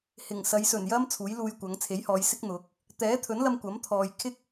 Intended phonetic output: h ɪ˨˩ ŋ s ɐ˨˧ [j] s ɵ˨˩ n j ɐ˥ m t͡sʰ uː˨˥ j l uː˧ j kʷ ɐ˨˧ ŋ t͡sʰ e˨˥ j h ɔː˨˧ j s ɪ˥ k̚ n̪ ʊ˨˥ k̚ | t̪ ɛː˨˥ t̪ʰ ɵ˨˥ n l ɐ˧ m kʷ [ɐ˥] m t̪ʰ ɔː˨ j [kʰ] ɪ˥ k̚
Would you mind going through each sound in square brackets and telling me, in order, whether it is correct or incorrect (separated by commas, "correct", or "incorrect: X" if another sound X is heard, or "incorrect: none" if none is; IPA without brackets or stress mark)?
correct, incorrect: ɐ˨˥, correct